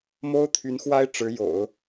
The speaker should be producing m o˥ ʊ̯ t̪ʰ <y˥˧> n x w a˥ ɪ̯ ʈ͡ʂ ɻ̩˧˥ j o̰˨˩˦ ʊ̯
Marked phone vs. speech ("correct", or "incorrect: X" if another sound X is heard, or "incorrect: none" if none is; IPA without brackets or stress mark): incorrect: y˧˥